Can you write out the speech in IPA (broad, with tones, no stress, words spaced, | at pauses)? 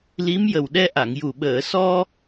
li˧˥m jə˨˩wɗɛ˧ ʔa˨˩˨ŋju˨˩ ɓəː˨˩˨sɔ˧